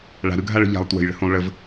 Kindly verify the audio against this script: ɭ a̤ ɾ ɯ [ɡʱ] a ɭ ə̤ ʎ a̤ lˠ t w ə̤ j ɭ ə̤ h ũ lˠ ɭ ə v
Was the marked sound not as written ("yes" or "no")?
no